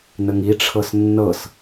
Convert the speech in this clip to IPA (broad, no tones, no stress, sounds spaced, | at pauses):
n ə ŋ i ʈ͡ʂʰ ɤ s nː ɤ s